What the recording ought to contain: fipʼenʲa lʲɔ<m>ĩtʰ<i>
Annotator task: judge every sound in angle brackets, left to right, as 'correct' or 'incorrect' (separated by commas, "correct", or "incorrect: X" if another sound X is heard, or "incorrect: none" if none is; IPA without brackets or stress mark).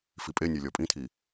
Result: incorrect: pʼ, correct